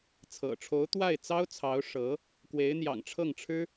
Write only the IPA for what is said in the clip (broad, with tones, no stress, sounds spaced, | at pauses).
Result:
t͡sʰ ɤ̰˨˩ ʈ͡ʂʰ o˧˥ ʊ̯ t̪ w a˥˩ ɪ̯ t͡s ɑ˥ ʊ̯ t͡sʰ ɑ˧˥ ʊ̯ ʂ ɤ˧˥ | k w e˧˥ ɪ̯ n̪ j ɑ̰˨˩ ŋ ʈ͡ʂʰ ɤ˥˩ ŋ ʈ͡ʂʰ ɻ̩˥